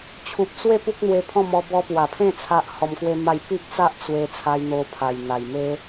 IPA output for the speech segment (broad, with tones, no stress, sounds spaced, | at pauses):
t͡ɕʰ u˨ p̚ t͡s w e˥˧ p u˦ k̚ n̪ w e˧ pʰ ɔ̃˥˧ m ɔ˧ b ɔ˧ p w a˨˩ pʰ ẽ˥˧ t͡sʰ a˦ ʔ h ɔ˧ m k w e˦ m a˥˧ j p i˦ ʔ t͡s a˦ ʔ t͡s w e˧ t͡sʰ a˧ j n̪ o˧ pʰ a˨˩ j n̪ a˨˩ j m e˦